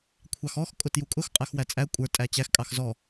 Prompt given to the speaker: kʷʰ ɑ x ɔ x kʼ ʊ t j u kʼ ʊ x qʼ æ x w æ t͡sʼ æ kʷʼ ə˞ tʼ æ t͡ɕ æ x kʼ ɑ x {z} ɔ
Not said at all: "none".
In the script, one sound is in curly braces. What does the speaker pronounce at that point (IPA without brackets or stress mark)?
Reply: z